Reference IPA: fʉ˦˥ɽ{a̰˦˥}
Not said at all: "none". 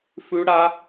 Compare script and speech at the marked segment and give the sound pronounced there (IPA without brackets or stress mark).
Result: a˦˥